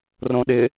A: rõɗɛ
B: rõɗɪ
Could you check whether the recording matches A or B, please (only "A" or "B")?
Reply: B